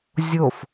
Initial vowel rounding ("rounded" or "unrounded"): rounded